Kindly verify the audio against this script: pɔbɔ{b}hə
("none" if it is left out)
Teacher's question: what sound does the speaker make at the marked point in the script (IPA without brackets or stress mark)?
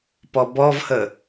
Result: v